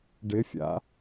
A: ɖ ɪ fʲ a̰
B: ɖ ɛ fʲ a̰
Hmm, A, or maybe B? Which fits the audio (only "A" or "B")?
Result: A